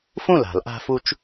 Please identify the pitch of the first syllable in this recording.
falling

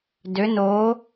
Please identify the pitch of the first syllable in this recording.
rising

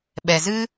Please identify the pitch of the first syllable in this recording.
low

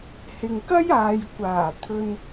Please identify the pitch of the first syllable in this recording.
low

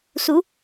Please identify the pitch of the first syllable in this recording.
rising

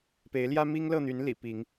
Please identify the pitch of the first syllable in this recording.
rising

